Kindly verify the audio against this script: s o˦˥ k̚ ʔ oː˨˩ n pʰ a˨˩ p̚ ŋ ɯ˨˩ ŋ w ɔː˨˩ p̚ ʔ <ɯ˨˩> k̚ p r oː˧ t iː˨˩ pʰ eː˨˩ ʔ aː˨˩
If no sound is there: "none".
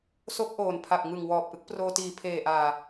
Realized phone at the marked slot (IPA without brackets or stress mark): ɯ˦˥